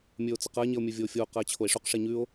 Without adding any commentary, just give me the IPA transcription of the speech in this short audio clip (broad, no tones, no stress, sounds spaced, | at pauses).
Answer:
mʲ ɵː o̯ t͡s ɐ q ɐ e̯ ɲ e o̯ mʲ ɵ vʲ oː fʲ oː q ɐ e̯ t͡ɕʰ o e̯ ʂ ɵ q ʂ e ɲ ʉ o̯